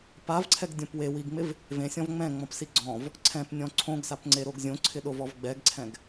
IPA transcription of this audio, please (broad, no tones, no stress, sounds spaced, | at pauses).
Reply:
p a v ǀʰ ɛ ɡ dʲ õ p w e w i ɡ ŋ͡m ɪ v | v ẽ sʲ ɔ̃ v ŋ͡m ɛ̃ ŋ͡m ɔ̃ p s i ɡ͡ǀ ɔ̃ v | ǀʰ ɛ̃ p nʲ ɔ̃ ǀʰ õ ɡ s a p ŋ͡ǀ e ɾ o ɡ zʲ õ ǀʰ ɪ ɗ o v ɔ v ɡ͡b ɛ ɡ ǀʰ ɛ̃ ɡ